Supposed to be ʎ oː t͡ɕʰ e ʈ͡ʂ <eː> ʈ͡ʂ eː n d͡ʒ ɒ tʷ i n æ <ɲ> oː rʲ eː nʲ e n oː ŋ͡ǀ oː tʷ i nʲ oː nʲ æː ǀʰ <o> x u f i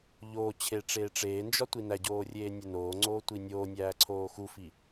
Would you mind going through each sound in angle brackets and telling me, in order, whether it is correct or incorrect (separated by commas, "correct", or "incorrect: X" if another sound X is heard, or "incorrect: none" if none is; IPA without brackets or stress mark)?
correct, incorrect: ɟ, incorrect: oː